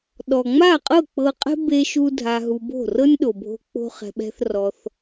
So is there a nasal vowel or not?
no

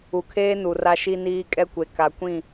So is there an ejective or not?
yes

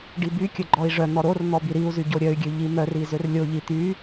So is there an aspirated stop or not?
no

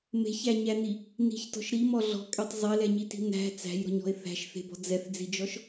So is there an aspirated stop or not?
no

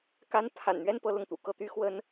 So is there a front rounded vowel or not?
yes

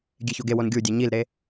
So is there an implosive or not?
no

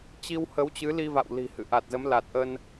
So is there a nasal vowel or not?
no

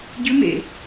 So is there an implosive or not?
no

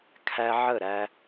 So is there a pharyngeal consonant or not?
yes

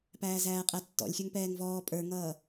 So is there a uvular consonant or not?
yes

